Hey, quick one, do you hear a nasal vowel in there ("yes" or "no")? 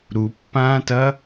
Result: yes